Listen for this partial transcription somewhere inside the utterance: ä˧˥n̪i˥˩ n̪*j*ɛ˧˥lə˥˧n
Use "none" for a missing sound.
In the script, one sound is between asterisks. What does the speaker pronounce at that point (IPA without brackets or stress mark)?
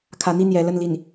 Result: j